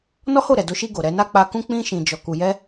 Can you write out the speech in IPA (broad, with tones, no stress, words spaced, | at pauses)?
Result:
nɔ˦ho˦˨ ɾɛ˨do˧ʃi˧ ɡo˨ɾɛ˨˦na˦ k͡pa˧kũ˦ k͡pĩ˧ ʃĩ˨d͡ʒɔ˨ ku˨jɛ˧